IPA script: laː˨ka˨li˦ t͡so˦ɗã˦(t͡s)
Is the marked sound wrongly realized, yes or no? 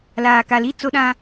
yes